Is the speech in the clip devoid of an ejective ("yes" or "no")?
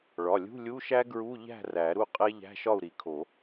no